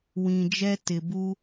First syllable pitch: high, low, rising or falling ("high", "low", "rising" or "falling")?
low